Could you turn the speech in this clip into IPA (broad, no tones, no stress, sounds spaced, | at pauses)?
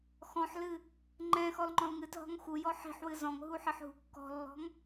x ɔ̃ ħ l ɨ | ŋ͡ǃ ɛ̃ x ɔ l ŋ͡ǃ ɔ̃ l ŋ ɨ t ɦ ɔ̤ ŋ x u j ɔ ħ i̤ ħ w ɨ z ɔ̃ ŋ ɦ u ħ ɘ ħ ɦ ṳ kː ɔ̤ lː ɔ̤ ŋ